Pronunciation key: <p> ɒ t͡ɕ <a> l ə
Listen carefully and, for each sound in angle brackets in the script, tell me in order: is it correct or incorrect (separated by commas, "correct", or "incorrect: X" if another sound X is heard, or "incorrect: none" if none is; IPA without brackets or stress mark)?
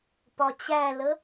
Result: correct, incorrect: æ